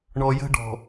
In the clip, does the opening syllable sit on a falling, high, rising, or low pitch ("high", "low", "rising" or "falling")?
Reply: low